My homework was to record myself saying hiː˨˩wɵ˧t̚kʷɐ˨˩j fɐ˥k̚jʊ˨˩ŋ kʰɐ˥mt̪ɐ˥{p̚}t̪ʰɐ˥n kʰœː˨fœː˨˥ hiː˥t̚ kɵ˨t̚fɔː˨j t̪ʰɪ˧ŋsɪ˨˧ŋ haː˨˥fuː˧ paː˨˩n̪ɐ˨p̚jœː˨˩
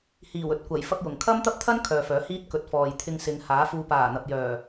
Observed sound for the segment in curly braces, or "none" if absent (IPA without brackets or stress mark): p̚